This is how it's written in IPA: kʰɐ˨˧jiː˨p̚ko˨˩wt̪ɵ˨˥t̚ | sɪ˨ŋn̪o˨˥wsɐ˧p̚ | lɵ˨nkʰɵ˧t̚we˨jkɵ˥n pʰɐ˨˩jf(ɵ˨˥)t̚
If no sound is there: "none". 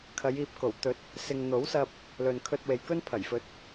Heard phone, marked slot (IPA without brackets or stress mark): ɵ˨˥